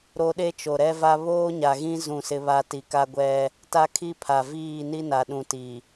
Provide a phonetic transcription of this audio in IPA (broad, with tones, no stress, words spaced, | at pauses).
ɾo˦ ɗe˦t͡ʃo˨ɾɛ˦va˦ βoː˦ɲa˨ɣĩ˦ zũ˦˨sɪ˦βa˦ ti˨ka˦ ɡʷɛ˦ | ta˦kʰi˦pʰa˨ viː˦˨ni˦na˨ ɗũ˨ti˨